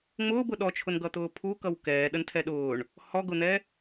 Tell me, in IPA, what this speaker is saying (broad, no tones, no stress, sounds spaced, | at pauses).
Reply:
ŋ͡m ʊː b ʊ ɗ ɔ t͡ʃʰ ʊ n ɡ ʌ t̪ ʊː pʰ u k ʌ w k ɛː ɗ ə n tʰ ɛ ɗ ʊː ɳ | h ɔ ɡ ʊ n̪ ɛ